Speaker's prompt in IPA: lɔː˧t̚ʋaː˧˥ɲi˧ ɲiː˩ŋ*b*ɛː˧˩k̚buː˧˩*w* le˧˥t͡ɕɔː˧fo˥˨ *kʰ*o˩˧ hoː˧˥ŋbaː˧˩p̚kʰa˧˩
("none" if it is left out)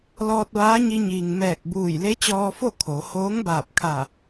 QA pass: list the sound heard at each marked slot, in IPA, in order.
m, j, kʰ

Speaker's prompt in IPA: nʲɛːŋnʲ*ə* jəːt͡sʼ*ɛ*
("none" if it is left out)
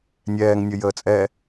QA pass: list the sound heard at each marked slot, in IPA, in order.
ə, ɛ

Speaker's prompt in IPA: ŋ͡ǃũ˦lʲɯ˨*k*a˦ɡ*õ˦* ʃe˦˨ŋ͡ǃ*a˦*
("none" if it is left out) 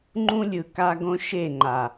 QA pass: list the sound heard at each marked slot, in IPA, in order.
k, õ˦, a˨

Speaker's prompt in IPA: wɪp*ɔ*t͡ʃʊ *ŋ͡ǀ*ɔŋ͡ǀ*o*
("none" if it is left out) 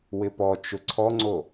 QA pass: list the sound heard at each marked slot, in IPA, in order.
ɔ, ǀʰ, o

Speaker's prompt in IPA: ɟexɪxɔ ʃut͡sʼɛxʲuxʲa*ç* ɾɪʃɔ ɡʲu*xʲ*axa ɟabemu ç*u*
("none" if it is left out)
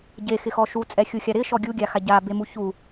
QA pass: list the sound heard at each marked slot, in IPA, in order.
none, ɡʲ, u

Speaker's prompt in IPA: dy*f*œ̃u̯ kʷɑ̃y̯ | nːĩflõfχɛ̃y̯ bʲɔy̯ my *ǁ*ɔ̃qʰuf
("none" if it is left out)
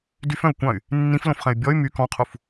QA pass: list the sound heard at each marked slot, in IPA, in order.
f, k

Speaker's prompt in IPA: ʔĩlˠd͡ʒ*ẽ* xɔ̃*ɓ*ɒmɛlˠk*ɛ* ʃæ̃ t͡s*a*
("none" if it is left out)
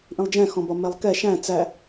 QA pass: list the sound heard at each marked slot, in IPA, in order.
ɛ̃, b, ɛ, æ

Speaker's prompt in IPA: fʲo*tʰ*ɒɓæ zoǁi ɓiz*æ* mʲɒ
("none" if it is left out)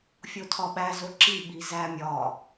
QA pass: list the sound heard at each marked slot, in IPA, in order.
tʰ, æ

